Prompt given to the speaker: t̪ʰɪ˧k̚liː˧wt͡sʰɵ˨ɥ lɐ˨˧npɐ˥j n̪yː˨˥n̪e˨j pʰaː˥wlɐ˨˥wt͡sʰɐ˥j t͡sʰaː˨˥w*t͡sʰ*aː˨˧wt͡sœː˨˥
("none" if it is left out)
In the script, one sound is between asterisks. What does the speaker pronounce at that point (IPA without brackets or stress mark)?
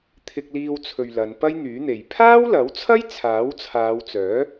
t͡sʰ